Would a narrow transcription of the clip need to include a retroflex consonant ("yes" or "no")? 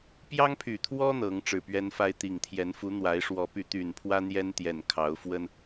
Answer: yes